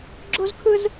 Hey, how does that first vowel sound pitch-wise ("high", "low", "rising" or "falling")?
high